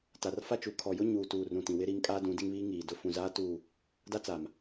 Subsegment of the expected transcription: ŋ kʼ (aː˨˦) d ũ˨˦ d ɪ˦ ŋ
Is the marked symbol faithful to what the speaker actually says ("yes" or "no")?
no